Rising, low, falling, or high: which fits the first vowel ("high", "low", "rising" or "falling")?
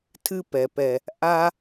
high